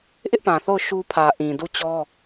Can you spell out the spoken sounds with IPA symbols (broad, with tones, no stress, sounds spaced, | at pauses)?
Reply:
ʔ ɪ˦ ʔ p ã˨ θ o˦˨ ʊ̯ ʃ u˦ pʰ ä˨ ʔ ĩ˨ d u˦˨ t͡ɕ ɔ˦